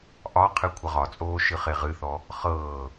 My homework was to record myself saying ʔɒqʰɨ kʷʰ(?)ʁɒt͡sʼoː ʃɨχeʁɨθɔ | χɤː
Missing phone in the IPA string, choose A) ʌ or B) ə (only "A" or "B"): B